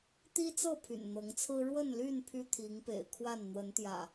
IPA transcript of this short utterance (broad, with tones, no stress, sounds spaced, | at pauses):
t̪ i˦ t͡s ɤ˥˨ pʰ y̰˨˩ n n̪ ɤ˨˦ ŋ t͡sʰ ɹ̩˦ ɻ w ə˥˨ n l y˥˨ n pʰ y˦ t̪ʰ i˨˦ ŋ p ḛ˨˩ ɪ̯ kʰ w a˥˨ n n̪ w ə˨˦ n t̪ j ä̰˨˩